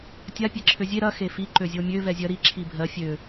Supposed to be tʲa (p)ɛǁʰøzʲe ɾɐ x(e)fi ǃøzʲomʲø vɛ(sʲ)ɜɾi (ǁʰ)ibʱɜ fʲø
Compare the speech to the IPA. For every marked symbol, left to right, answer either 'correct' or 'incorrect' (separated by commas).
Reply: incorrect, correct, incorrect, correct